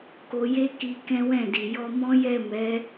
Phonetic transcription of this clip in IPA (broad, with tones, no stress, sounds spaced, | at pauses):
k o˧ j e˦ k i˧ k ɛ̃˦ w ɛ̃˦˨ d i˨ j ɔ˧ m ɔ̃˦ j ɛ˦˨ m ɛ˨˦